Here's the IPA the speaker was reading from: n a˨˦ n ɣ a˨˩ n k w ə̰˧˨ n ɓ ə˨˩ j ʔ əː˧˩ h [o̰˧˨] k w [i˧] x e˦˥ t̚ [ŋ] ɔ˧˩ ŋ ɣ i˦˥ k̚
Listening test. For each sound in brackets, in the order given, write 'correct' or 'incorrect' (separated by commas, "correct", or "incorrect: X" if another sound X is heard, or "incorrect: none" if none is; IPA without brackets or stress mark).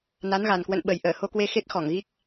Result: incorrect: o˧, incorrect: e˧, incorrect: x